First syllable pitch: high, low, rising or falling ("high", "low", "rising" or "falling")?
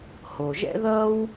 low